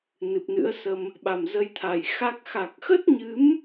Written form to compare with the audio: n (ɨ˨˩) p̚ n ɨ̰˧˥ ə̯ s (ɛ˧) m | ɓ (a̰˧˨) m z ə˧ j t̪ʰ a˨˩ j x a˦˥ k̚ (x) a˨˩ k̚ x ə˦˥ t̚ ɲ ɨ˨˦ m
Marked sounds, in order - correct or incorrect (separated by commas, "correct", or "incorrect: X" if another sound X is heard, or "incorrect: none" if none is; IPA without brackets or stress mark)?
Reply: correct, incorrect: ə˧, incorrect: a˨˩, correct